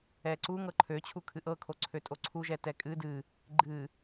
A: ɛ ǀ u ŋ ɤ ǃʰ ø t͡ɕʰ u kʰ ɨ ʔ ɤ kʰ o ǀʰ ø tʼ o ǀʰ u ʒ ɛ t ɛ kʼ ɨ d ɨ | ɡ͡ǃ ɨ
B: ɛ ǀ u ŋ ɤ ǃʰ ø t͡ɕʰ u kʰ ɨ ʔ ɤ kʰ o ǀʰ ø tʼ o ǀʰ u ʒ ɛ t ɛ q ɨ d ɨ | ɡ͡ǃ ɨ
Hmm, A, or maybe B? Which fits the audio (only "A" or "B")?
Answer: A